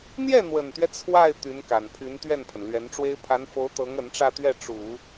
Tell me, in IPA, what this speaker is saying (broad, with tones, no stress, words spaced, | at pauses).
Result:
n̪jɛ˥˩n̪wə˨˩nt̪ɥɛ˦ t͡sʰwa˥˩ɪ̯ t̪y˧˥nka˨˩npʰy˧˥n t̪ɥɛ˥˩npʰə˩nlɥɛ˧˥nʈ͡ʂwe˥ɪ̯ pʰa˧˥nfo˧˥ʊ̯t̪ɤ˧˥ŋ ə˧˥nʈ͡ʂä˥˧t̪ɥɛ˥˩ ʈ͡ʂu˨˩˦